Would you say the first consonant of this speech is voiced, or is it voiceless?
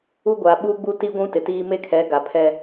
voiced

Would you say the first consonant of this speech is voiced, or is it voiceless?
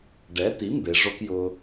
voiced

